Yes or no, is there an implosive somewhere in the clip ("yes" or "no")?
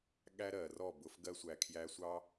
yes